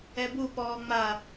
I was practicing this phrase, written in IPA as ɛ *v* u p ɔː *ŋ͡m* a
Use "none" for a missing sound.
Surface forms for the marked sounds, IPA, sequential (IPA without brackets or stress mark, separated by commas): b, ŋ͡m